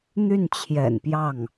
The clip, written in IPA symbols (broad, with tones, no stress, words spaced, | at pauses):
n̪y˥˩nt͡ɕʰjɛ̰˨˩npjɑ˥˩ŋ